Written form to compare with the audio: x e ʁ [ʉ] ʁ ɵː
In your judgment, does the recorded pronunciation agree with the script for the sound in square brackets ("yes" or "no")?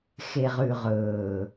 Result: yes